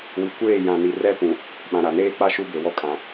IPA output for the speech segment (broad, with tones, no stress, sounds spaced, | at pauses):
w i˨ kʷ eː˦˨ j ã˨ n i˨ r ɛ˦ p ũ˨ | ɓ ã˨ ɾ a˨ n eː˦ k͡p a˦ ʃ u˦ b e˨ w ɔ˦ kʼ ã˨